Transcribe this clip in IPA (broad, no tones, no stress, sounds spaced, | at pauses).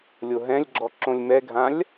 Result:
lʲ o ɦ ɛ̃ lʲ ɡ͡ǁ ɔ ǁ õ lʲ m ɛ ɡʱ ã lʲ